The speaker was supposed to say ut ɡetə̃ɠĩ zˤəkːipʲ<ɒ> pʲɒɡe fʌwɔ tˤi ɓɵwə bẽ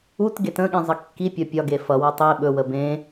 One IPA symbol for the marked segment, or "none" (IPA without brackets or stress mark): ɒ